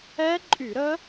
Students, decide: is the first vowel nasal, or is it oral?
oral